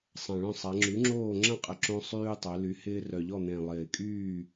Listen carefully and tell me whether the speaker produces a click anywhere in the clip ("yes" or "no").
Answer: yes